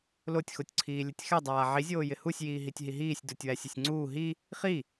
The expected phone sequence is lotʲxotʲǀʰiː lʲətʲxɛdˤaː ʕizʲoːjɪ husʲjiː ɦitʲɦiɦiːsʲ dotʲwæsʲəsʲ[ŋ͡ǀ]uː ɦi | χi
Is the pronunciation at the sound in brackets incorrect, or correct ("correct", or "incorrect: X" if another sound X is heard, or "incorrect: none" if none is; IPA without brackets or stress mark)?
correct